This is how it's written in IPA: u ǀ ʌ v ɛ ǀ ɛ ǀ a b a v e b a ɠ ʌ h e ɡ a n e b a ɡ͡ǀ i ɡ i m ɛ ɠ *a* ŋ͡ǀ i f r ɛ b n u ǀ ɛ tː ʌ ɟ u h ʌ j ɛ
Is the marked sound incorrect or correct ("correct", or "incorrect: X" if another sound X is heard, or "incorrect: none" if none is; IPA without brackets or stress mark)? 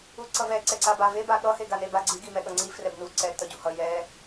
incorrect: ʌ